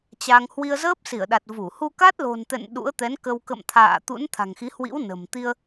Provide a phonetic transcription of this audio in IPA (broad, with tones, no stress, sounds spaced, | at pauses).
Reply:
t͡ɕ a˧ ŋ h w i˧ ə̯ z əː˦˥ p̚ s i˧˩ ə̯ ɗ a˨˩ t̚ v u˧˩ h u˧ k a˦˥ t̚ l o̤˨˩ n t̪ ɛ̰˧˨ n ɗ ṵ˧˥ ə̯ t̪ ɛ˨˦ n k ə˧ w k ə̰˧˨ m t̪ʰ a̰ː˧˨ t̪ ṵ˧˥ n t̪ʰ a̤˨˩ ŋ x i˨˦ h w ḭ˧˥ w n ə̤˨˩ m t̪ i˧ ə̯